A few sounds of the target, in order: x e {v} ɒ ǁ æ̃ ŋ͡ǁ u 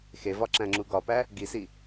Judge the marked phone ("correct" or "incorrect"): correct